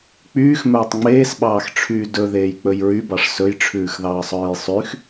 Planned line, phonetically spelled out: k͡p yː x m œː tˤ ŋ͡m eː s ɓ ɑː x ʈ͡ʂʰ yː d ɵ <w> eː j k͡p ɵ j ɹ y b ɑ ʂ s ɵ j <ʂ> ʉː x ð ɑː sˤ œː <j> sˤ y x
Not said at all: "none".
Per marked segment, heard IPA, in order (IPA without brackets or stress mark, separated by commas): ð, ʈ͡ʂʰ, j